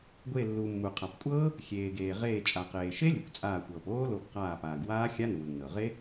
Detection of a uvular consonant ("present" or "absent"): present